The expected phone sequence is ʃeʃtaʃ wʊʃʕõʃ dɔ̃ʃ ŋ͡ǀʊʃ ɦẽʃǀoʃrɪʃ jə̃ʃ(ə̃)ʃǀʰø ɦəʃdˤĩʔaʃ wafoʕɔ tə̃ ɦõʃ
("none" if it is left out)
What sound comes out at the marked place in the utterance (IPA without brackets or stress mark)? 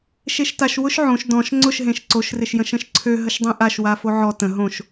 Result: ə̃